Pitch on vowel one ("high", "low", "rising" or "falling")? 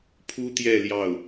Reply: high